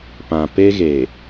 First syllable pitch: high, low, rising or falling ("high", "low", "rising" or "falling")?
low